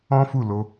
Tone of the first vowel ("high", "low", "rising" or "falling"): high